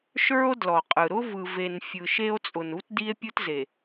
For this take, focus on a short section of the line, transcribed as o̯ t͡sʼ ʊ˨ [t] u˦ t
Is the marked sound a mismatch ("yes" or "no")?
yes